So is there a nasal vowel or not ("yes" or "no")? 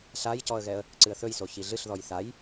no